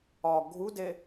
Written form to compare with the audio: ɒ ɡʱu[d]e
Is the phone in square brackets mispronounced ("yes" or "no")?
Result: no